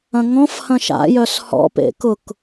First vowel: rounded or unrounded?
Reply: unrounded